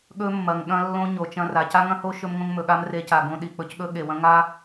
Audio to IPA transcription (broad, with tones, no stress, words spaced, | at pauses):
ɠɵ˦mːɐ˨ŋ ɠɐ̃˦lːõ˦ ɲo˨t͡ʃɐ̃˦ra˨ ca˦ŋɐ̃˦ho˦ ʃɵ˦mŋõ˦ŋmɵ˨ɠa˦m re˦ca˨ɡõ˦ɗi˨ k͡pɵ˨cɠɵ˦ ɠe˨wɐ̃˦ ŋa˦